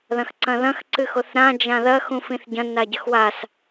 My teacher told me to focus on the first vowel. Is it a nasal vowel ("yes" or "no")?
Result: yes